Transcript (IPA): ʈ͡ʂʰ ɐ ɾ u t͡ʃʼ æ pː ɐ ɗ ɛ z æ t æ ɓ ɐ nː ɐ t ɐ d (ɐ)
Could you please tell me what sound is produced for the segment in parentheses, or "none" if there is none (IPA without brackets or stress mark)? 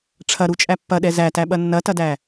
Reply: æ